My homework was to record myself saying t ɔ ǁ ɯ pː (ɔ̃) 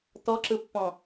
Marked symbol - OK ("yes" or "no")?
yes